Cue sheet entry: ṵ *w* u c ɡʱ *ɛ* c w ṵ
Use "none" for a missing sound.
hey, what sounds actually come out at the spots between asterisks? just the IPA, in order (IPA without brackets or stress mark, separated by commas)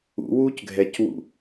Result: w, ɛ